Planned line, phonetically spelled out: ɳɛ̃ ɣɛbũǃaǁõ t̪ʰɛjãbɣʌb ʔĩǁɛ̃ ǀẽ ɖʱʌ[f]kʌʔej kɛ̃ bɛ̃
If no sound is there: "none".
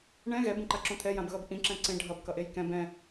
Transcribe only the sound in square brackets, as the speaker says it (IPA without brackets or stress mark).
b